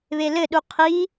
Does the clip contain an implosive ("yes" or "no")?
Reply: yes